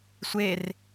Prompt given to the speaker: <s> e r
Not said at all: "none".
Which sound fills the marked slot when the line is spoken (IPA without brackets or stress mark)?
sʷ